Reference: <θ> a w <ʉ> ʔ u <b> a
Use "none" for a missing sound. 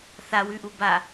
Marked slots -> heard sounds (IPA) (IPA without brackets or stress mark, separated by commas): θ, ʉ, b